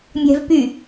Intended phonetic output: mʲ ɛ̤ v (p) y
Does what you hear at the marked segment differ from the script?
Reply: no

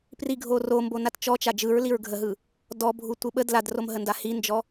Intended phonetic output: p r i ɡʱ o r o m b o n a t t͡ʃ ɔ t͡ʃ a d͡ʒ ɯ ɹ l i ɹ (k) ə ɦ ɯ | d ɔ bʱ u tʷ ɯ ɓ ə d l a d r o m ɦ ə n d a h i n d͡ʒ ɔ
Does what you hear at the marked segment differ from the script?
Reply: yes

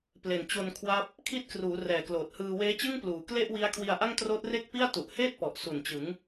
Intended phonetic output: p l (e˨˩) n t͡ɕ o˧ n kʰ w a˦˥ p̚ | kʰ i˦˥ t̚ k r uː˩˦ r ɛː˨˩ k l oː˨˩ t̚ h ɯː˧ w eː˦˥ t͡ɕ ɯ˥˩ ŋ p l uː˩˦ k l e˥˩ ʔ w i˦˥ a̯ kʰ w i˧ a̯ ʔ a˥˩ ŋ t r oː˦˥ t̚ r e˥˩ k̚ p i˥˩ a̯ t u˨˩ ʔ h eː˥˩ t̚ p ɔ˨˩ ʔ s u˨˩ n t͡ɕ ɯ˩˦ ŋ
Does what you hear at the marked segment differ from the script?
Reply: no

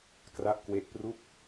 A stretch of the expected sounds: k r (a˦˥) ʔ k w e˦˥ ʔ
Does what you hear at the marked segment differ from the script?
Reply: no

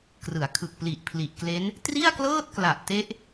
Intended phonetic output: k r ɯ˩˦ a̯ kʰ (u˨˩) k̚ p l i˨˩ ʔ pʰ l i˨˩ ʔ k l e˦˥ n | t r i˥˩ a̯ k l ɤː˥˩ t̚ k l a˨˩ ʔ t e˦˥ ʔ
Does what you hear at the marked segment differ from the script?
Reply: yes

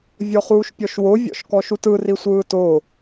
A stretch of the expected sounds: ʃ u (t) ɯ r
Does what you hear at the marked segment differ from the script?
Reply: no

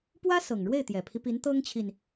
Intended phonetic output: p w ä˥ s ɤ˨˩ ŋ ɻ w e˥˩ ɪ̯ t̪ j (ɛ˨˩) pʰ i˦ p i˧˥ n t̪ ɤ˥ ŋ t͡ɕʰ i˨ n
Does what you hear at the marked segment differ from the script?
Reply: no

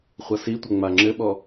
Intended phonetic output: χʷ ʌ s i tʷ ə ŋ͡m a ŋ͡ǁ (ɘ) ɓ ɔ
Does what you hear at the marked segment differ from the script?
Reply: no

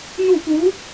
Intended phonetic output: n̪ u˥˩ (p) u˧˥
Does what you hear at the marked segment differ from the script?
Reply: no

